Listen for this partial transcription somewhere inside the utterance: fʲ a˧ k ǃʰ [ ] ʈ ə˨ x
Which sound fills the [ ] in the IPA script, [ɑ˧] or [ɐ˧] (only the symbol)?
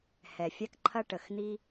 ɐ˧